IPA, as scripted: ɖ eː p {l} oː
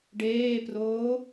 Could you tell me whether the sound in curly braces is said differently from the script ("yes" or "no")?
yes